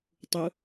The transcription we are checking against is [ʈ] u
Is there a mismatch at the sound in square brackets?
yes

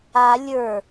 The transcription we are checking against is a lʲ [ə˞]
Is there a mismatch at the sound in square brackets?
no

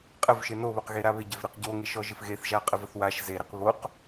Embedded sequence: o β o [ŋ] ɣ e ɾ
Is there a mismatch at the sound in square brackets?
yes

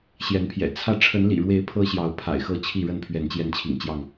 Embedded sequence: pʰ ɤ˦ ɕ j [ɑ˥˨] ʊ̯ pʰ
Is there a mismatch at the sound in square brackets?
yes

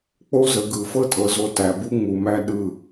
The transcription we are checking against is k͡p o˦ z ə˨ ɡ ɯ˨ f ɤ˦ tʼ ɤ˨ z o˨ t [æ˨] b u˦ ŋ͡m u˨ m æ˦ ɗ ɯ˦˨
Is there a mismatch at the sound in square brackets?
no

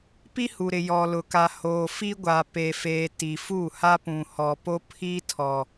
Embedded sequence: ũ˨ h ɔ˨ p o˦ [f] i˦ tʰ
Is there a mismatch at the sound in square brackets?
yes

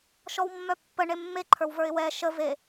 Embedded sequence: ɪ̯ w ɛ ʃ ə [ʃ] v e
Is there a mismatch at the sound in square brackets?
yes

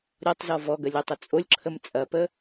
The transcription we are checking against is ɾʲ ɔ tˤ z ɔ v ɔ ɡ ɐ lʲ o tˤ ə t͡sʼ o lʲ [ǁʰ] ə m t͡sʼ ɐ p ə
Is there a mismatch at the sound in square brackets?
no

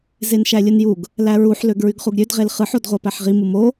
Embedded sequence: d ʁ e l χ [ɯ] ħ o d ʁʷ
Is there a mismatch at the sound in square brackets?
no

